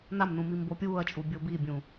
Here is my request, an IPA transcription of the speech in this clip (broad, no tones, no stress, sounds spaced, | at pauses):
n a m n ũ m i m b o pʲ uː ɐ̯ t͡ʃʼ u bʲ o b i bʲ ũ